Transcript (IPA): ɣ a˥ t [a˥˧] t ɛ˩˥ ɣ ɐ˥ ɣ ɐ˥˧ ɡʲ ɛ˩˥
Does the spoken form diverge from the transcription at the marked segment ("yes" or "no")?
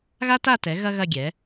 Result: no